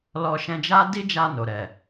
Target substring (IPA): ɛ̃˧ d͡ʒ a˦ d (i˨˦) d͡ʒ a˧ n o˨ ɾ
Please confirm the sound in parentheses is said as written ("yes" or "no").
no